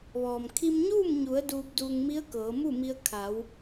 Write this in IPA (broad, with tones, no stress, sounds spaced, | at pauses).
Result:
ʋ ɔː˩ m kʰ i˧ m ɲ uː˥˨ m ɲ u˩˧ ə̯ d uː˧ p̚ d uː˧ ŋ m i˧˥ ə̯ k ɤː˩˧ m u˥˨ m i˧ ə̯ kʰ a˩˧ w